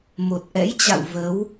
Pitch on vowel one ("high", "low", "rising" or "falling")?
low